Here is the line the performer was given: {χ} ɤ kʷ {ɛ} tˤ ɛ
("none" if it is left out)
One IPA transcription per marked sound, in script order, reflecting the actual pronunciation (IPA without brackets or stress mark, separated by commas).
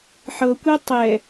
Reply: ħ, ɛ